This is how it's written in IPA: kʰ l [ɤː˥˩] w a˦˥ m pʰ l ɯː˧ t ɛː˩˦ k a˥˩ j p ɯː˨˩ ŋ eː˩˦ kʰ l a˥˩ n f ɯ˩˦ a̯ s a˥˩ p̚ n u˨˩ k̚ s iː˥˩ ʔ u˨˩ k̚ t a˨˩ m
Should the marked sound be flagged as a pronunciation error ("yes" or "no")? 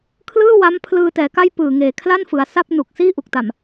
yes